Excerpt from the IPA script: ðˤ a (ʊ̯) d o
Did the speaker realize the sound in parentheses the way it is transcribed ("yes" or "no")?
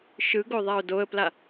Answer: yes